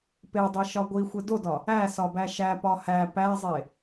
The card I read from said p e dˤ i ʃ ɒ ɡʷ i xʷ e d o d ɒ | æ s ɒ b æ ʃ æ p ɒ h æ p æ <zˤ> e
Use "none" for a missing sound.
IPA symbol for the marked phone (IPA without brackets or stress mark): zˤ